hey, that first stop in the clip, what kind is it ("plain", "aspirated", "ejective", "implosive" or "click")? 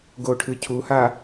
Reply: plain